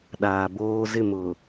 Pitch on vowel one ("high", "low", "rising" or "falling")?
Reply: low